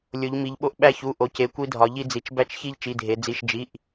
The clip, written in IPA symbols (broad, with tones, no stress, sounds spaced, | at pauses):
lʲ o˩˧ ʎ m i˩˧ ʎ ɓ o˧ ʔ ɓ æ˧ ç u˩˧˩ ʔ o˩˧ c e˩˧˩ kʷ i˧ dʱ ɒ˩˧ ʎ i˧ d͡z i˩˧ t͡ʃ b æ˧ t͡ʃ ç i˧ ʎ t͡ʃ i˩˧˩ dʱ e˩˧ d͡z i˩˧˩ ʃ d͡ʒ i˩˧˩ ʔ